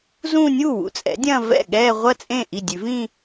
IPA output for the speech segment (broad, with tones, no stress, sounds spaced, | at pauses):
z ũː˥˧ nʲ uː˥˩ w ṵ˩˥ t͡sʼ ɛ̰˩˥ dʲ ɐ̃ː˥˧ v ɛ̰˥˩ ɠ ɛː˥˧ ʁʷ ɐ˥˧ t͡sʼ ẽ˥˩ ʔ i˥˩ dʲ ʉ˨˩˦ v ĩː˥˧